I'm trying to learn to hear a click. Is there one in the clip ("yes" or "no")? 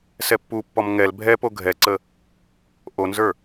yes